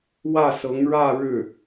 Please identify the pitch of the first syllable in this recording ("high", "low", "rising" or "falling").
falling